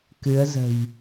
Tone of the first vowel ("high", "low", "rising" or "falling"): rising